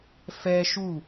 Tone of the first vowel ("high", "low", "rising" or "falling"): high